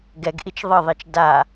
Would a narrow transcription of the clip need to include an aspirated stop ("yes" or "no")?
no